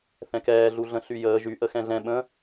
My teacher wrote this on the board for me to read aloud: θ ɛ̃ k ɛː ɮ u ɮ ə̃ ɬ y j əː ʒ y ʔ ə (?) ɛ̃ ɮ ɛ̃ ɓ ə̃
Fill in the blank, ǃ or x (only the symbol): x